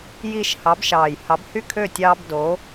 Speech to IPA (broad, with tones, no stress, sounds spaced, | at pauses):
j i˦ ʃ h ɑ˨˦ b ʃ ɑː˨˩ j h ɑ˨˦ b h y˥˨ kʰ ø˥˨ tʲ ɑː˦ b d o˨˦